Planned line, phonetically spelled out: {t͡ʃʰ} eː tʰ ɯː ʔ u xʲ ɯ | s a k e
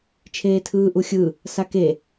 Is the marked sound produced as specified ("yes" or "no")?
yes